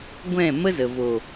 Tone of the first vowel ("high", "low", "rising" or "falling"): falling